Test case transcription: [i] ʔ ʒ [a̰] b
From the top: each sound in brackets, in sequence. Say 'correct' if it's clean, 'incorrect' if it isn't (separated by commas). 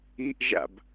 correct, correct